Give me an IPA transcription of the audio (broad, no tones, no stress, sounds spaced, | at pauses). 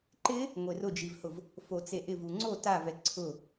ǃ ɪ | ŋʷ e r ʊ d͡ʒ i v h ʊ v | f o t͡s e ʔ ɪ v u ŋ͡ǀ o t a v ɛ ǀʰ ʊ